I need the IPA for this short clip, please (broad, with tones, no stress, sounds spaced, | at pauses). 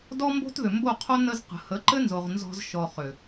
d ɔ˦ m b o̤˦ t ð ʏ˨ m b o˦˨ qʰ o˦ n ə˧ z q ə̤˨ h ə˨˦ ǃ ɘ˦ n z o˨ ʁ n z ɔ̤˧ z ʃ ɔ˨ χ ʏ˨